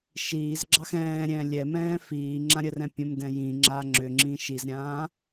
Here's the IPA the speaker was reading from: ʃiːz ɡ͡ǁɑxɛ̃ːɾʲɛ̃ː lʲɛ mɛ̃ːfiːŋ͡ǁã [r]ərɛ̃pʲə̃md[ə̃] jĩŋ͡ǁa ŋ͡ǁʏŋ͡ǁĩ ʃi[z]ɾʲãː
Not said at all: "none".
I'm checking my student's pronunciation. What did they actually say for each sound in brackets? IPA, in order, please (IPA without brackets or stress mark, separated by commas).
ɾʲ, ɛ̃, z